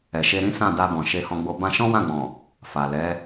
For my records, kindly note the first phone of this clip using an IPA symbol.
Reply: ɛ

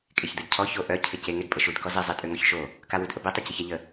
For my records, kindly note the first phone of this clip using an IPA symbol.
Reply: kʼ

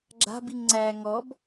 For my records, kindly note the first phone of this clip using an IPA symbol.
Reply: ɡ͡ǁ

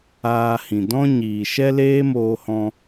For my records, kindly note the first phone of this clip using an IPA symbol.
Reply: aː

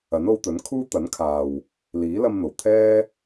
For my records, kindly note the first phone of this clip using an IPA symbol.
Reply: ɐ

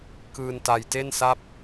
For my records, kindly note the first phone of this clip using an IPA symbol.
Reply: k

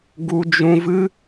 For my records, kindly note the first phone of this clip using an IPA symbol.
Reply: ɡ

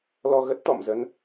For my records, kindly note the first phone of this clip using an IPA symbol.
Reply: l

